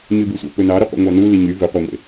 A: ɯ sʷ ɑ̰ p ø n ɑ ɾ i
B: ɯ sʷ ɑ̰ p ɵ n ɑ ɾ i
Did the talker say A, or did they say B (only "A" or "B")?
A